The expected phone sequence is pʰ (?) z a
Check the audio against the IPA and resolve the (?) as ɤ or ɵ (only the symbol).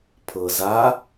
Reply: ɤ